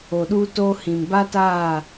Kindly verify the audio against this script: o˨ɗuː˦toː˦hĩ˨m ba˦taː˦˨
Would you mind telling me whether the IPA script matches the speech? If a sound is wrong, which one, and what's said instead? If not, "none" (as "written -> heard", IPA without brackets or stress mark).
none